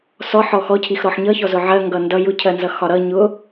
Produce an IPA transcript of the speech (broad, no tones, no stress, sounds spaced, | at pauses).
s ɔ ħ ɔ x ɔ cʰ i x ɾ ɔ ħ ɲ ʌ ç ɔ z ʊ ʕ ɜ ŋ ɡ ʌ n d ʌ j ʊ cʰ ɜ n z ʌ x ɒ ɾ ʌ ɲ ʊ